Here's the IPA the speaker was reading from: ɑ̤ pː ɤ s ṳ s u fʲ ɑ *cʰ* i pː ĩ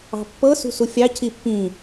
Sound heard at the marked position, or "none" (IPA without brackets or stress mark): cʰ